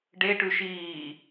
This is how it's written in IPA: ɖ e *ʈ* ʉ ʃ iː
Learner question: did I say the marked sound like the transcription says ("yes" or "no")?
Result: yes